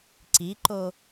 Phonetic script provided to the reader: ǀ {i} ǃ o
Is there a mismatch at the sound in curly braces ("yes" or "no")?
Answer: no